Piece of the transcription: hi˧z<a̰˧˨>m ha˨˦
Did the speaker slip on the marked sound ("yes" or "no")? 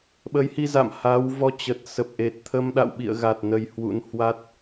no